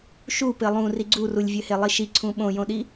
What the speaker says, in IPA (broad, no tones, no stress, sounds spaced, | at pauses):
ʃ u p ɘ lˠ ũ r i ɡ͡ǀ u r u lʲ vʲ ɘ h e lˠ i ʃ i ǀʰ ũ ɓ õ j õ ɗ i